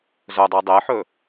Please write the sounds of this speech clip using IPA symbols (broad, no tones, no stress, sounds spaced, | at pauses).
z ɵ dˤ u dˤ e ħ ɵ